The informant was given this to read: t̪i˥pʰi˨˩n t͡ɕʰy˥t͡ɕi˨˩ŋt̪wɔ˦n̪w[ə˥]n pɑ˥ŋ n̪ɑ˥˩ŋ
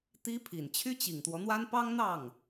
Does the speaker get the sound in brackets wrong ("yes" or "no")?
yes